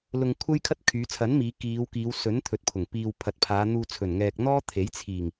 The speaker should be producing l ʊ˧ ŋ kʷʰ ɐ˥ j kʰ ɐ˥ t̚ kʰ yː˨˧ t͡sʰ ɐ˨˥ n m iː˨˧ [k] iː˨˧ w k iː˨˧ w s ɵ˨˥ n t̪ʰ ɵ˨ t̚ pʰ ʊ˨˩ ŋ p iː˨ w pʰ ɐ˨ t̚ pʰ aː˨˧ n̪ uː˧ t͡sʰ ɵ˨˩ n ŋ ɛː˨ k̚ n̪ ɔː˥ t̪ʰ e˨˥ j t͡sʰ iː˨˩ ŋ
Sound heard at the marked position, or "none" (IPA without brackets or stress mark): k